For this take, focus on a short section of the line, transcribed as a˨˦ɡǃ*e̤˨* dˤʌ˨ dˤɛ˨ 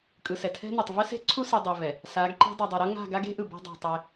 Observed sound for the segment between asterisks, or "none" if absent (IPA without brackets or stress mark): e̤˦